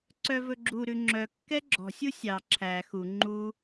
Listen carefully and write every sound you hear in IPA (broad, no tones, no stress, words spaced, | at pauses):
ǀœvɵɡ͡ǁuɾʉ ŋ͡ǁœkːɛ ɡ͡ǁɔ̤sʲu sʲɑ ǁʰæ xu ŋ͡ǃu